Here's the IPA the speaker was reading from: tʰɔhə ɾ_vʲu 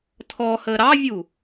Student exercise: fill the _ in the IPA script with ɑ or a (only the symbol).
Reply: ɑ